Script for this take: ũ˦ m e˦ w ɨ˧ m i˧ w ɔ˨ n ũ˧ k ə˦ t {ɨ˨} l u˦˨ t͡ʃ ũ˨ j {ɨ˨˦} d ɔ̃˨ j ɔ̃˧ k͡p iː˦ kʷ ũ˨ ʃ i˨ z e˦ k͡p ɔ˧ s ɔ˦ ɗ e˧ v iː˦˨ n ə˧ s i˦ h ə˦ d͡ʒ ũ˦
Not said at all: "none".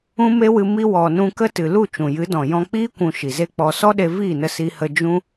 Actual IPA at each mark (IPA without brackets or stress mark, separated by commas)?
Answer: ɨ˨, ɨ˨˦